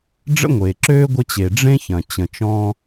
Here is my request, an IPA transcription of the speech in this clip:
ɖ͡ʐ ə̰˥ ŋʷ eː˩ ǁ øː˥ ɡʷ ə˧ t͡ɕ e˩ ɖ͡ʐ ẽ˥ ç ɐ̃˩ t͡ɕ ə̃˩ t͡ʃ ɔ̃˧

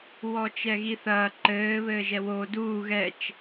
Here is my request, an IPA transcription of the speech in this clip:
w ɔ t͡ʃ ɛ ɣ i θ ɐː ǃ ɘː β ɘː ʒ ɛ w o d uː ɣ ɛ t͡ʃ

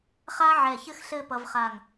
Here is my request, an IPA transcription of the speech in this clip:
χ a˥ ʕ ɛ˧˩ ç ɘ˥ x ɬ ɘ˥˧ p ʌ˧ v χ a˧˩ ŋ

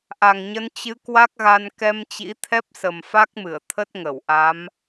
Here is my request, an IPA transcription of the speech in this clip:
ʔ a˨˩ ŋ ɲ ə˨˦ n t͡ɕ ɨ˨˦ k w a˦˥ k̚ ɣ a˧ n k ɛ˧ m t͡ɕ ḭ˧˥ t̪ʰ ɛ˦˥ p̚ s ə˨˩ m f a˦˥ k̚ m ɨ˧˩ ə̯ t̪ʰ ə˦˥ t̚ ŋ ə˧˩ w ʔ a˨˦ m

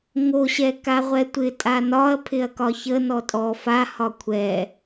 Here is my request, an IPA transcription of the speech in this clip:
ŋ o ɕ ɛ k a ʁʷ ɛ tʷ ɪ tʼ a n ɒ ɐ̯ pʰ ɪ ɐ̯ k ɒ ç ə n ɔ tʼ ɔ f a h ɒ kʷʰ ɛ

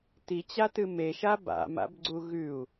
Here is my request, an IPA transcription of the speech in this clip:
t i t͡ɕ a t ɨ m e ʃ a b a̰ m a̰ b ɡ͡ǀ u ɣ ʉ u̯

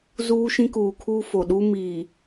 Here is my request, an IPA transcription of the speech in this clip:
z uː˦ ʃ ĩ˦ k uː˨ kʰ uː˦ f o˨ ɗ u˦ m iː˨

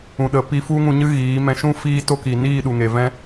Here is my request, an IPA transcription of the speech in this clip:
ũ˨ ɗ ə˨ p i˧ f u˦ ŋ ũ˧ ɲ ɨ˦ ɣ iː˨˦ m ɛ̃˧ ʃ ũ˦ f iː˦ t o˦ k i˨ n iː˦˨ ɗ u˨ ŋ e˨ v ɛ̃˦

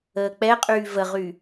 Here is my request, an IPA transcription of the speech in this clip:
əː k͡p ɛ qʼ yː v ə ʁ y

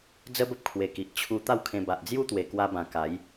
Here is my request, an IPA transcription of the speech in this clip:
d͡z ə˦ b ə˦ p̚ kʰ w e˨˩ k i˨ ʔ t͡ɕʰ u˧ t̪ a˥˧ w kʰ ẽ˧ b a˨ ʔ d͡z j u˦ t̪ w e˨˩ k w a˧ b ã˨˩ k a˨˦ j

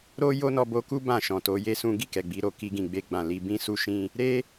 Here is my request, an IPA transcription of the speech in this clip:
ɾ o˦ j o˦ n ɔ˧ b o˧ k u˦ b ã˦˨ ʃ ɔ̃˨ t o˨˦ j e˦ s ũ˦ ɡ i˦˨ k ɛ˨ ɡ͡b i˨˦ ɾ o˦˨ k i˧ ɡ ĩ˨ ɡ͡b e˧ ɡ͡b ã˨ l i˧ b ĩ˦ s u˦ ʃ ĩ˦ | ɾ e˦

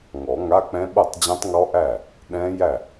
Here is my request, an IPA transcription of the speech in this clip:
ŋ ɔ˨˩˦ ŋ a˧˥˧ k͡p ɛ̃˦˥ ɓ ɤ˥˩ tˤ d͡ʑ ɛ̃˦˥ tˤ ŋ ɔ˦˥ ʔ æ˥˩ | ɗ ɛ̃˦˥ j æ˥˩

